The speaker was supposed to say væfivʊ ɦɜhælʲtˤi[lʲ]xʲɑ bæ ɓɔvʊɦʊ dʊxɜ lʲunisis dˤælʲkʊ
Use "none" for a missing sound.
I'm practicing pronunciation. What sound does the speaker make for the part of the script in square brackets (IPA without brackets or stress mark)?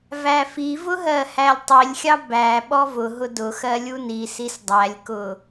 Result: lʲ